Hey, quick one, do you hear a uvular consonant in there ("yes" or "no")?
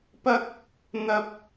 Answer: no